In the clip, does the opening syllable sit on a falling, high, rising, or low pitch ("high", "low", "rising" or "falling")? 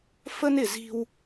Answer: high